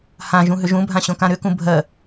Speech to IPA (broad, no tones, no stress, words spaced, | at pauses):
hã ʒũɦʏʒũbʱã ɕõkãɾʏkũ bʱɜ